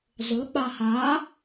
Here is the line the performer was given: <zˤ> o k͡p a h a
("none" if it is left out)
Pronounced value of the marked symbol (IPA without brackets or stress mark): zˤ